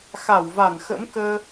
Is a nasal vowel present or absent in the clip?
absent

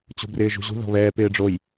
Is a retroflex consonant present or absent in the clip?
present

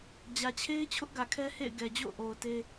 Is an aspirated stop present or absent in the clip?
present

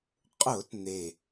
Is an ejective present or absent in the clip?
present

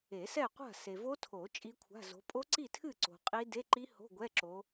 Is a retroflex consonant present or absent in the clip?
absent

